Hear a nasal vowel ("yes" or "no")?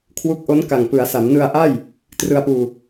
no